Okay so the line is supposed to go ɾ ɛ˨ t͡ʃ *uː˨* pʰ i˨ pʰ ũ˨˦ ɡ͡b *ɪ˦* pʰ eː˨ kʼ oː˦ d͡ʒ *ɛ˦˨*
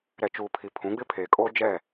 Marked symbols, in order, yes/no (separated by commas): yes, yes, yes